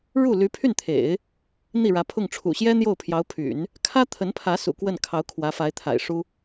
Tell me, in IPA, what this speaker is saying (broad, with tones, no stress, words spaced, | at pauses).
ɻu˥˩ly˧˥pʰy˥˩nt̪ʰḛ˨˩˦ɪ̯ | n̪i˥˩ɻä˧˥pʰʊ˥˩ŋ ʈ͡ʂʰṵ˨˩ɕjɛ˥ n̪jo˥˩ʊ̯pʰjɑ˧˥ʊ̯pʰy̰˨˩˦n | kʰä˥t̪ʰə˧˥npʰä˧˥ sṵ˨˩kwə˥˩nkʰɑ˧˥ʊ̯ kʰwä˧˥fa˧˥ɪ̯ t̪ʰa̰˨˩ɪ̯ʂu˥